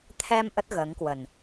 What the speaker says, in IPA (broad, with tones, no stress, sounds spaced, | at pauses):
t̪ʰ ɛ˧ m ʔ ə˦˥ t̚ ɣ əː˨˦ ŋ k w ə˨˩ n